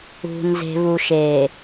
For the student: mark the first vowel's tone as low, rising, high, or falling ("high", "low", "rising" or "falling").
low